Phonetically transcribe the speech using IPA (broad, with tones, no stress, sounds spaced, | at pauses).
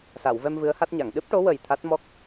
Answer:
s a˨˩˨ w v ɛ˧ m v ɨ˧˥ ə̯ h a˦˥ t̚ ɲ a˨˩˨ ŋ ɗ ɨ˦˥ p̚ ʈ o˧˥ w ə˨˩ j t̪ʰ a˦˥ t̚ m ɔ˦˥ k̚